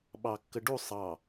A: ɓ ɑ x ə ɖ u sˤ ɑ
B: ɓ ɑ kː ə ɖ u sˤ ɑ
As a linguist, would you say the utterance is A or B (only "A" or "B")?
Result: B